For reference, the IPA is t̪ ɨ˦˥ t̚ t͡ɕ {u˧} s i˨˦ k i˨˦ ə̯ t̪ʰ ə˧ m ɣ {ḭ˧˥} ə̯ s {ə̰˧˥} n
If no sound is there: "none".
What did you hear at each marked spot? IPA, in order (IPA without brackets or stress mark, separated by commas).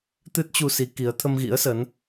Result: u˧, ḭ˧˥, ə˨˦